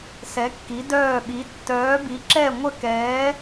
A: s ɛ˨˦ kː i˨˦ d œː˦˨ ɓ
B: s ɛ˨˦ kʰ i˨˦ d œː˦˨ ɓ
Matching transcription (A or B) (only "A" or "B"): A